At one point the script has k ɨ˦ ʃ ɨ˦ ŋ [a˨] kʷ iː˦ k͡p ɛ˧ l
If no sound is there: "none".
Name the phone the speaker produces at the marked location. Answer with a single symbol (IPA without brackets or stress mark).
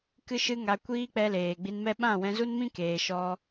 a˧